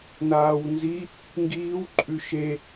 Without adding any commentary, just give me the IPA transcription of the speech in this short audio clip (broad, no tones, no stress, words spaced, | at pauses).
naːwnzi | ŋɡiːw ǃʼʉʃe